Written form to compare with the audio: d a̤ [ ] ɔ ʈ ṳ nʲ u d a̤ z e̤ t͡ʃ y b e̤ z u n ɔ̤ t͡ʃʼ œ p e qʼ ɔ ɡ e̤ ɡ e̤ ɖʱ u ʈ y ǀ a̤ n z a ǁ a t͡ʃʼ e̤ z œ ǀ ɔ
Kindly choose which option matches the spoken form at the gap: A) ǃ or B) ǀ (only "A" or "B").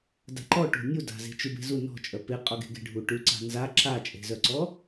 A